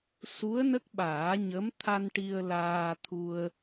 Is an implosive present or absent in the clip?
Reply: present